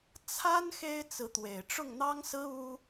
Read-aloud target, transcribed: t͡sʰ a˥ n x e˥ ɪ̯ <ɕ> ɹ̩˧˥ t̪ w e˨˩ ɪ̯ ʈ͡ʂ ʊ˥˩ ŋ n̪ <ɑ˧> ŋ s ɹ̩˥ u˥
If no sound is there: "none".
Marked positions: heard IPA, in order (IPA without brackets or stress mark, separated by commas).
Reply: t͡s, ɑ˥